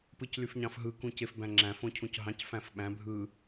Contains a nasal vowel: yes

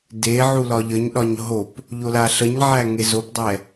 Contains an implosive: yes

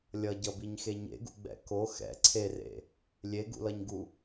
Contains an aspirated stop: yes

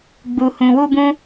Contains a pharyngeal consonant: no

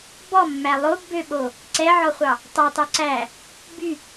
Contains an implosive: yes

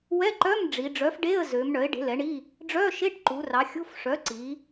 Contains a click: yes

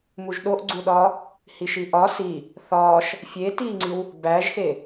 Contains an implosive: yes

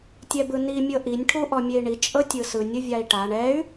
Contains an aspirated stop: yes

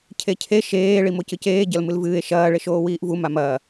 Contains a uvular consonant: no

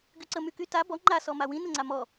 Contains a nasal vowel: yes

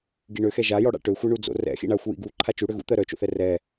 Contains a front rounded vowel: yes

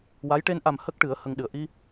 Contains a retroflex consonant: yes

